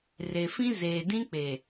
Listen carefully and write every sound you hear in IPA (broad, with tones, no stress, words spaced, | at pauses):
re˨fĩ˦ zeː˨dĩ˦k͡pe˨